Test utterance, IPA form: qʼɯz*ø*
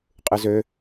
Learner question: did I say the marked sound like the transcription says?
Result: yes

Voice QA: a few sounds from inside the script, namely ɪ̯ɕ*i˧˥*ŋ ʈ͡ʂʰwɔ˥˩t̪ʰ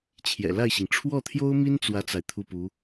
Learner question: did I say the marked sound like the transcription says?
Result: no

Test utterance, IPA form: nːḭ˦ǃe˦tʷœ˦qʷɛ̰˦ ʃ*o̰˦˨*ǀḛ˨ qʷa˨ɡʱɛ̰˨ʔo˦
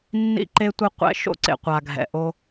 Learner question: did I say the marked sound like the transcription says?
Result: no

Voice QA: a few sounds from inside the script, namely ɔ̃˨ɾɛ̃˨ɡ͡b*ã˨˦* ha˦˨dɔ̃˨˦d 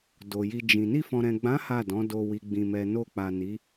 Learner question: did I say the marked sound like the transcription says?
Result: yes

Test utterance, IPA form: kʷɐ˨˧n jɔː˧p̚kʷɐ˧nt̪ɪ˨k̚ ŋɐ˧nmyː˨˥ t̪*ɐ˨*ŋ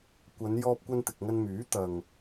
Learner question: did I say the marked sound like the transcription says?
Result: yes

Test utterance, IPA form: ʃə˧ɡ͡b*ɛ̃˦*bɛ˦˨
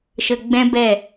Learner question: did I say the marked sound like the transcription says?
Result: yes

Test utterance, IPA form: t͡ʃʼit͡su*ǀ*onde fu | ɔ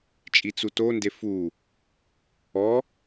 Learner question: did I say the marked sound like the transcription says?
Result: no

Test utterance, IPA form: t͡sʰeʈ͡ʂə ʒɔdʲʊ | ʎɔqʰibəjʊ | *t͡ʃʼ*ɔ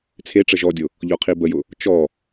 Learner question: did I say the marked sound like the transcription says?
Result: no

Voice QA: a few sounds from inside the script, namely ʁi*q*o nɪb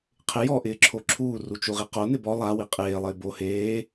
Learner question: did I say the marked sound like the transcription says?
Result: yes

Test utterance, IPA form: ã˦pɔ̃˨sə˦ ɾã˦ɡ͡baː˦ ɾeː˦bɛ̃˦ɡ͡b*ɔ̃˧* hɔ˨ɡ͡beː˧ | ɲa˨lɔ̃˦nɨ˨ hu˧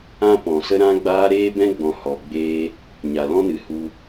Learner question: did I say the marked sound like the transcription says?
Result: no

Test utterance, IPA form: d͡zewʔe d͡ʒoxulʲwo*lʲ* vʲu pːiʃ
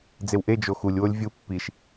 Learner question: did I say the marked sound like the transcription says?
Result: yes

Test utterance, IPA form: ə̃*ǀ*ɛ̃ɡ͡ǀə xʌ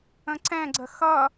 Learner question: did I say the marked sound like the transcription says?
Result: yes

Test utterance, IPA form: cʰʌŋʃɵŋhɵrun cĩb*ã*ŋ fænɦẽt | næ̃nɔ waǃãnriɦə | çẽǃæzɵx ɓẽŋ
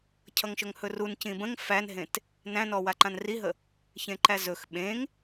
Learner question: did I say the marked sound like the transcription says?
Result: no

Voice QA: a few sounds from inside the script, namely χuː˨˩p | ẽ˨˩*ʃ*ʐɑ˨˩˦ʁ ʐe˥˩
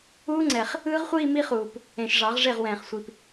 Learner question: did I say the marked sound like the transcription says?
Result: yes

